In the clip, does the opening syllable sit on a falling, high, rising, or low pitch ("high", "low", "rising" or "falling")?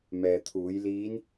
low